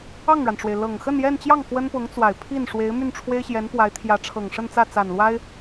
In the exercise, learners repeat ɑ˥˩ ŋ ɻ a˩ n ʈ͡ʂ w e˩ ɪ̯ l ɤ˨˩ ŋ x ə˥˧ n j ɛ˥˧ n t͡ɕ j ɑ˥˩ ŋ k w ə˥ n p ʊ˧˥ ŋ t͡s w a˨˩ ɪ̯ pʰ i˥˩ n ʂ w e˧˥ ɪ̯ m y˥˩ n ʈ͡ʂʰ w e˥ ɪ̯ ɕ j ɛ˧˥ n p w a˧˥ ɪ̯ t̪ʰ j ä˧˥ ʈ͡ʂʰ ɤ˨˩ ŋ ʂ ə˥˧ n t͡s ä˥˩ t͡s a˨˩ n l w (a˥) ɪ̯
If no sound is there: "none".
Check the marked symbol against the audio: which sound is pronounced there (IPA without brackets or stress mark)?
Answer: a˥